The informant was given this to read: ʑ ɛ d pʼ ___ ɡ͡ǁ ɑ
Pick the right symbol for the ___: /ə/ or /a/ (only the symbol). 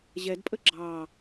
ə